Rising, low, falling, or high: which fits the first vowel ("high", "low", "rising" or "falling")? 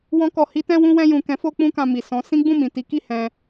high